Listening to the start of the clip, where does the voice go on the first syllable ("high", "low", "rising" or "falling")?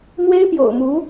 high